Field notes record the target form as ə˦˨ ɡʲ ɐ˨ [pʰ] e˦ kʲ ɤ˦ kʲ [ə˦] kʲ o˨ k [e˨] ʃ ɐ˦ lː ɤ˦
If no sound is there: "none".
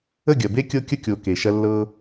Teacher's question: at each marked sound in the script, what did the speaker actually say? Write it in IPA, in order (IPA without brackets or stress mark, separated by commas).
b, ə˦, e˨